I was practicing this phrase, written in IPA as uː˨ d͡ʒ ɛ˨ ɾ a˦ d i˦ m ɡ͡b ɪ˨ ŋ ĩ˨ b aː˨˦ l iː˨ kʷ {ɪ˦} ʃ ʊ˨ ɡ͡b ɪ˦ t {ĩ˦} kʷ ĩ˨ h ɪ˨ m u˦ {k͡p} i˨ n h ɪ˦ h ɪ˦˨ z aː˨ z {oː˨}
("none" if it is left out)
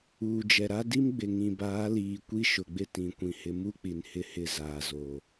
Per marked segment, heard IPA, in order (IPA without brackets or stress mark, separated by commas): i˦, ĩ˨, k͡p, oː˨